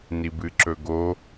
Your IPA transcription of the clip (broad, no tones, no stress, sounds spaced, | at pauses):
n i b ɨ ǁ ɵ ɡ o